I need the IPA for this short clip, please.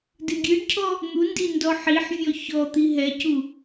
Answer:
d ɨ ɡʲ ɨ ɖ cʰ ɔ | n̪ u n d i n d ɔ ħ i ħ vʲ ɔ ç ɔ t̪ i ɦ ɛ c u

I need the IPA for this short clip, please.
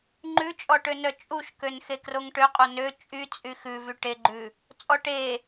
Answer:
ŋ͡ǃ ʉ t͡ʃʼ ɔ ʈ ø n œ t͡ʃʼ u ʃ k ø n x e k r o ŋ ʈ ø qʼ o n ø t͡ʃʼ y t͡sʼ y x ʉ v y ʈ e ɡ͡ǃ ʉ | t͡sʼ ɔ ʈ e

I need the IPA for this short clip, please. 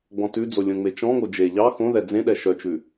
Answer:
ɡ͡b ɔ̃ t ʉ d͡z o lʲ õ ŋ͡m e t͡ʃ ɔ̃ ŋ o d͡ʒ e ʎ ɑ x õ ð ɛ d͡z ẽ ɗ ɛ ʃ œ t͡ʃ ʉ

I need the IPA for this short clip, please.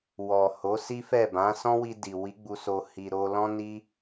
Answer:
w ɔ˨ h o˨˦ s i˦ f ɛ˦˨ b ã˨˦ s ɔ̃˦ w i˧ d i˨ w i˨˦ ɡ͡b u˧ s o˧ h i˧ ɾ o˦ l ɔ̃˦ n i˦

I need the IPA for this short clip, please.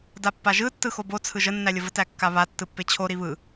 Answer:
d a pː a ʒ ɯ tː ɯ x o b o t͡sʰ ɯ ʒ ə nː æ lʲ ə v ə t æ kː a β a tː ɯ pː e t͡ɕʰ o ɾ i β ɯ

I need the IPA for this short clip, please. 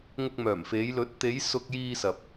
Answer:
ŋ ʊ˧ k̚ m œː˨˩ m f e˨˧ j l ɵ˨˥ t̚ t̪ e˨˧ j s ʊ˧ k̚ j iː˧ s ɐ˨ p̚

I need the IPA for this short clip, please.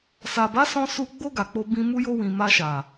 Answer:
s a˨ b a˨˦ s ɔ̃˧ s u˧ ɡ͡b o˧ ɡ a˨ k͡p o˧ b ĩ˧ m u˧ j o˧ w ĩ˨ m a˧ ʃ a˨

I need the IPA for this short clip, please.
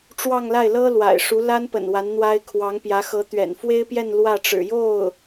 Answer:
ʈ͡ʂ w ɑ˥˧ ŋ l a˥˩ ɪ̯ l ɤ˥ l w a̰˨˩ ɪ̯ ʂ u˧˥ l a˥ n p ə̰˨˩ n w a˧˥ n n̪ w a˥ ɪ̯ kʰ w ɑ˧˥ ŋ p j ä˧˥ x ɤ˧˥ t̪ ɥ ɛ̰˨˩ n f w e˥ ɪ̯ p j ɛ˥˧ n l w ä˥˩ ʈ͡ʂ ɻ̩˨˩ j o˥˩ ʊ̯

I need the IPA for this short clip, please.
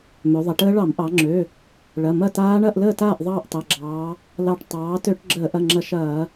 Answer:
m ø˩˧ ðˤ ɐ˩˧ ʈ əː˦˥ ɭ ɑ˧˩˧ m ʔ ɑ˩˧ ŋ͡ǁ ø˩˧˩ | ɭ ɐ˩˧˩ m ɐ˥˨ t aː˦˥ ɳ ɐ˥˨ ʔ l əː˥˨ t aː˥˨ ʔ ðˤ ɑː˥˨ ʔ tˤ ɐ˩˧˩ ɡ͡ǁ ɑː˩˧ | l ɑ˧˩ ʈ tˤ ɑː˩˧ t ø˧˩˧ ʈ ɡ͡ǁ əː˧˩˧ ʔ ɐ˩˧˩ ŋ͡ǁ ɐ˧˩˧ ʃ ɐː˧˩˧

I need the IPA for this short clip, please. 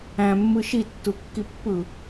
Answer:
æ̃ mː ɯ ʃ i tː u kː i pː ɯ

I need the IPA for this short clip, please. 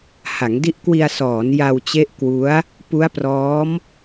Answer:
h a˩˦ ŋ d i˦˥ ʔ k w i˧ a̯ s ɔː˩˦ n j a˧ w t͡ɕ e˦˥ ʔ k w u˦˥ a̯ | p u˦˥ a̯ p r ɔː˦˥ m

